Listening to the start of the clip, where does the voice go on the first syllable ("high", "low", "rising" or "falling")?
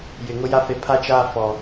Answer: low